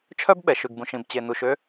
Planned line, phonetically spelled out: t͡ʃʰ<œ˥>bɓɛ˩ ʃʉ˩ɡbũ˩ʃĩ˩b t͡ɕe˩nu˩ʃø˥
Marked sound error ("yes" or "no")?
no